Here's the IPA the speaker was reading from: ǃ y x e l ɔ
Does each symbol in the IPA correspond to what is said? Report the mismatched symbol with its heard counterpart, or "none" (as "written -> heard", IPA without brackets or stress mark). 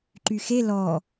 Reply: none